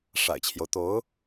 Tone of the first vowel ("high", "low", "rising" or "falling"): low